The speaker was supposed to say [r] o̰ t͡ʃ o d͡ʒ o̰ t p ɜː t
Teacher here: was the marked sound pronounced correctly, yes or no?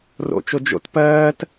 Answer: yes